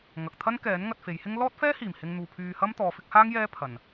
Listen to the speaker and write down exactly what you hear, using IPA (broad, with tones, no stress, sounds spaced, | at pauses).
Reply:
ŋ ɐ˨ k̚ t̪ʰ ɐ˥ n k ɛː˨˥ n ŋ ɐ˧ t̚ f e˨˧ j h ɪ˥ ŋ l ɔː˥ t̚ f ɛː˥ h iː˨˩ m h ɪ˧ ŋ n̪ uː˨ pʰ yː˧ h ɐ˥ m t̪ ɔː˨˧ f ɪ˨˥ k̚ h aː˥ ŋ j ɛː˥ pʰ ɐ˨ n